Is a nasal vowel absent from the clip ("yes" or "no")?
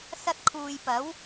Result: yes